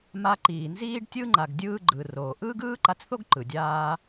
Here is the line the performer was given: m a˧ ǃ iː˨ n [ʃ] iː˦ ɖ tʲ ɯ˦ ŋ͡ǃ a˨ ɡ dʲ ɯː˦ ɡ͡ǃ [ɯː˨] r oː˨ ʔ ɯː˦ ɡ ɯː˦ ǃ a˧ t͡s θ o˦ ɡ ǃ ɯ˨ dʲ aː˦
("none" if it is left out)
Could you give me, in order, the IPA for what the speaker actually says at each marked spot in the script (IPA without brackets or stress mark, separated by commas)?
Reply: z, ɯː˨